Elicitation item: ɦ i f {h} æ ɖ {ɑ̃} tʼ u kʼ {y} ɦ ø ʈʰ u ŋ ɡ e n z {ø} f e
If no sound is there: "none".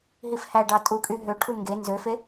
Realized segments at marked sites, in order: h, ɑ, y, ø

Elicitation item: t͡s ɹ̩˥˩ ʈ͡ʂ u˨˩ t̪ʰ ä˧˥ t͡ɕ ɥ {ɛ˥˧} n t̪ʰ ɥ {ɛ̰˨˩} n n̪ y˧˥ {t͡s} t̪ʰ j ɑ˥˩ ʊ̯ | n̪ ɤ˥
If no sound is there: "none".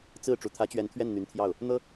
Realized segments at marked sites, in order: ɛ˧˥, ɛ˥˩, n

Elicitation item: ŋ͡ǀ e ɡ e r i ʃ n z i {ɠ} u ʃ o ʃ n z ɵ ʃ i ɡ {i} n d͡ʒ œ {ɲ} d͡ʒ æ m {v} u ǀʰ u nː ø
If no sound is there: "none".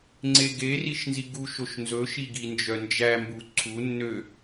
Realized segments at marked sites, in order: ɡ, i, n, b

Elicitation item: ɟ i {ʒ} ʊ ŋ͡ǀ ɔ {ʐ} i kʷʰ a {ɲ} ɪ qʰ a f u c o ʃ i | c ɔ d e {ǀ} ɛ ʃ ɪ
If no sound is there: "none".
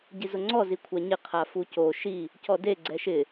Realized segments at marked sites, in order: z, z, ɲ, ɡ͡ǀ

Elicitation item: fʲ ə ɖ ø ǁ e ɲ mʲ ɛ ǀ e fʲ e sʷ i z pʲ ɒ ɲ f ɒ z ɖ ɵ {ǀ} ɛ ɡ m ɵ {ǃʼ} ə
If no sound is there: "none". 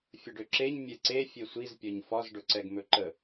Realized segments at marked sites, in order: ǀ, ǃ

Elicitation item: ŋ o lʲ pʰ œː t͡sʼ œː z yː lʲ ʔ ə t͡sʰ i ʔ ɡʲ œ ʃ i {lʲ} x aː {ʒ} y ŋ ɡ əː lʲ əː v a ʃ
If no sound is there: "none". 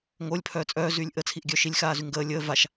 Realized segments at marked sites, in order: lʲ, z

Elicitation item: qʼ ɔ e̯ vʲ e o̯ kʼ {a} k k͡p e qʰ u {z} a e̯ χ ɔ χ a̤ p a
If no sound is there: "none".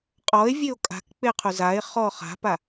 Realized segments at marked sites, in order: a̤, z

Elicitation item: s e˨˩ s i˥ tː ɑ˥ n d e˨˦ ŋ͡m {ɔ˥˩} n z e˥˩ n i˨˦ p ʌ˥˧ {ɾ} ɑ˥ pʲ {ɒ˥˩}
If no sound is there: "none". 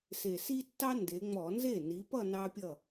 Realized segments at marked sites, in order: ɔ˧˩˧, n, ʌ˥˩

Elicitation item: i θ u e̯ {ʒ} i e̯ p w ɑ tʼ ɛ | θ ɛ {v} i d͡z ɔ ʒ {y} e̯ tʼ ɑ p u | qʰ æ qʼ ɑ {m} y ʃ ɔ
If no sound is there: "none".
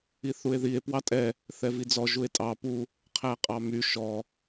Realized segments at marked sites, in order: ð, v, u, m

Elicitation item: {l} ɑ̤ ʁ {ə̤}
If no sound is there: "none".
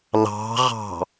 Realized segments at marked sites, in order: l, ɑ̤

